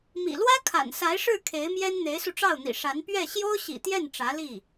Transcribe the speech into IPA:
mḭ˨˩lwä˥kʰa̰˨˩n sa˧˥ɪ̯ʂɻ̩˥˩ kʰe˧˥ɪ̯mjɛ˥n n̪e˧˥ɪ̯su˧ʈ͡ʂɑ˥˩ʊ̯n̪ḭ˨˩ ʂa˧˥n pɥɛ˥˩ ɕjo˥ʊ̯ɕḭ˨˩t̪jɛ˥˩n ʈ͡ʂä˧˥li˥˩

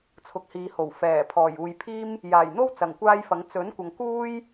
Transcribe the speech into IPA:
t͡sʰʊ˨k̚hiː˨ho˨˩w fɛː˨˩pʰɔː˨˩j uː˨jpʰiː˥m | jaː˨˩jn̪o˥w t͡sɐ˨˩ŋkʷaː˥jfɐ˨˥ŋ t͡sɵ˨˥n kʷɐ˨ŋkuː˥j

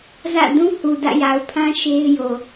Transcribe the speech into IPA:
zä̰˦˨ dũ˦ hu˨dä̰˦˨ja˨ʊ̯pʰã˦ ʃe˦ɪ̯ jo˨

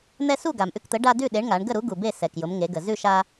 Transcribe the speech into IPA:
n̪ɛ˦su˥˨ɡa˩m ʔʉ˦kt̪ə˨˥ ɖa˦dʉ˥˨ ɗe˨˥ɳŋa˩˧ɳ ɡə˥˨ɾu˨˥ ɡu˩be˥˨ sɛ˩kjʊ˩˧m ŋe˩˧ɡə˩ zʉ˥˨ʃa˦

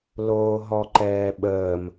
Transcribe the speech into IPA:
loːɦɔǃɛːɓəːm

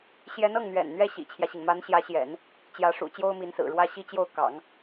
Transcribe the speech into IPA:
ɕjɛ˧˥nɤ˥˩ŋn̪ɥɛ̰˨˩n n̪ɥɛ˥ɕḭ˨˩t͡ɕʰjä˦ɕi˩ŋ ma˧˥nɕjä˧˥ɕjɛ̰˨˩˦n | t͡ɕjä˧˥ʂṵ˨˩ t͡ɕjo˥ʊ̯mi˧˥nsɹ̩˨˩ɻwä˥ ɕi˥˧t͡ɕjo˥˩ʊ̯ kɑ̰˨˩˦ŋ

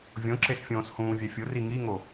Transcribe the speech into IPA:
vʲõǁesfʲõːs hũːvʲɛfʲʊ riŋiŋo

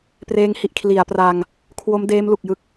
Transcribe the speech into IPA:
preː˦˥ŋhi˨˩ʔ kʰli˩˦a̯pra˧ŋ | kʰwo˦˥mdeː˦˥mlu˨˩k̚jɯ˦˥k̚

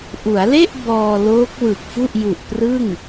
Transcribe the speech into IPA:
ʔu˩˦a̯le˥˩ʔ bɔː˧ loː˦˥k̚wɯ˨˩k̚fu˥˩ʔ ju˨˩ʔprɯ˥˩ŋ

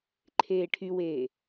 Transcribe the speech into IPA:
ǃʰeːʈʰyweː

